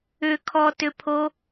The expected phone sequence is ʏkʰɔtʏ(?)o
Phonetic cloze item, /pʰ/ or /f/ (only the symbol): pʰ